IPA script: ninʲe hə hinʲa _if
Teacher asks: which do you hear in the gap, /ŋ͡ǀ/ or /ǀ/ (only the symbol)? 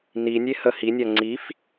ŋ͡ǀ